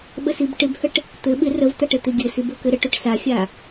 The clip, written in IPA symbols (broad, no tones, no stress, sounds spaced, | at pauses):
ɓ ə s i b ʈ ɪ b h ə ʈ | t̪ ɘ ɓ ɪ r ə v t̪ a ʈ ɘ t̪ ɪ ɡʲ ɘ s i b ə k ɘ ɾ ə ʈ o ʈ s a xʲ a